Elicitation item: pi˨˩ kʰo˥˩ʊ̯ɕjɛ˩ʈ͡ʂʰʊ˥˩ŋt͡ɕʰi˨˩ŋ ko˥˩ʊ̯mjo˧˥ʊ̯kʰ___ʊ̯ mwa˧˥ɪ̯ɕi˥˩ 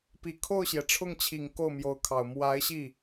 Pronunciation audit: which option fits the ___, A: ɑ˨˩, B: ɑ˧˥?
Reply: A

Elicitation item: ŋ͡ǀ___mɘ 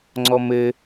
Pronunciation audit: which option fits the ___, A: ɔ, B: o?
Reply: A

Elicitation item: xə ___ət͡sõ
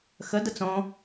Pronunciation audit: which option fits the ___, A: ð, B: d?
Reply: B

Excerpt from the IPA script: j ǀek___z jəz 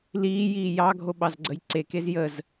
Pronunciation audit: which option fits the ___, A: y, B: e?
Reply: B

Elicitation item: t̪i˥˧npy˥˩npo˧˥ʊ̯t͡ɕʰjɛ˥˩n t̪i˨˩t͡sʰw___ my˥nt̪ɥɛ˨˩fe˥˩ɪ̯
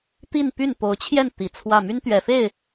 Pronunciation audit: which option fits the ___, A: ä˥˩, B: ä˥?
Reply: A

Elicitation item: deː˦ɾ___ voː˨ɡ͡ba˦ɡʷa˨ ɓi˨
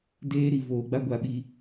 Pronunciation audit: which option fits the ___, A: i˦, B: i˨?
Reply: B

